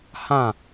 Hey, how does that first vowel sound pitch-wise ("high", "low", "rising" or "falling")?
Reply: falling